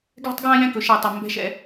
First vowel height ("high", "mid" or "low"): mid